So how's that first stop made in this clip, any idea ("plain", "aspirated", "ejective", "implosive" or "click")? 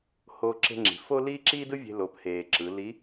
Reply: click